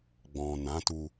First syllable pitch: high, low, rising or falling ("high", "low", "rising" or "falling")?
low